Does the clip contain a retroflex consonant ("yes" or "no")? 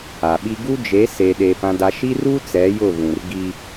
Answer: no